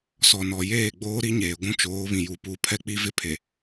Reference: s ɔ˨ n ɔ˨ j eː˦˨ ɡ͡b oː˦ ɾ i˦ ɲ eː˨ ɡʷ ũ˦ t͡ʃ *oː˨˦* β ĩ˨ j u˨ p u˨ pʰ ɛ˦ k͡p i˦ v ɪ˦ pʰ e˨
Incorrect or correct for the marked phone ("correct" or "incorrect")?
correct